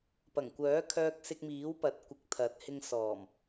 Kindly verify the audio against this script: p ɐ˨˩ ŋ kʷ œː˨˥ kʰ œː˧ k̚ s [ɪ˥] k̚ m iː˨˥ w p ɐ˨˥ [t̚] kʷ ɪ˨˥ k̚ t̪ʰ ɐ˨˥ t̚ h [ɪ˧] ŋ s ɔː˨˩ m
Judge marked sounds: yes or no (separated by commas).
no, yes, yes